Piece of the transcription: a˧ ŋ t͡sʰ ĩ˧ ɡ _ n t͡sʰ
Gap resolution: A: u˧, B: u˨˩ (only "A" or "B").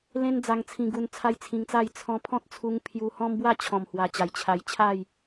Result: A